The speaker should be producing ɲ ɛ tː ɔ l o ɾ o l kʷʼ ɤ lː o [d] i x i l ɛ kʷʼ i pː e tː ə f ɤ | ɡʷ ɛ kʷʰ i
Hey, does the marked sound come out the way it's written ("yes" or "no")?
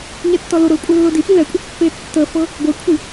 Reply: yes